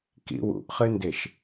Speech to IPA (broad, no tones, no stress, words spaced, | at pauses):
kḭwṵʔχɨndeʃ